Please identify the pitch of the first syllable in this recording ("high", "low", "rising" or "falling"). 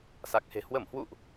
low